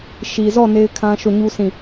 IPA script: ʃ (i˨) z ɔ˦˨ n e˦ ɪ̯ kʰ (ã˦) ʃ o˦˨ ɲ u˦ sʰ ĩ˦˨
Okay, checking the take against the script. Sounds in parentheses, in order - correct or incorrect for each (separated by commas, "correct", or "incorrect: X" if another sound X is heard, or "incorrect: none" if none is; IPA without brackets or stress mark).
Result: correct, correct